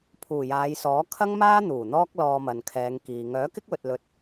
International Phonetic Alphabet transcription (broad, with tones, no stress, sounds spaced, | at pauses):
pʰ uː˨˩ j aː˨˧ j s ɔː˨˥ kʰ ɐ˥ ŋ m aː˥ n̪ uː˨˩ n̪ ɔː˥ k̚ l ɔː˧ m ɐ˨ n kʰ ɛː˨˧ ŋ k iː˨ ŋ œː˨˥ k ɪ˥ k̚ w ɵ˨ t̚ l ɵ˧ t̚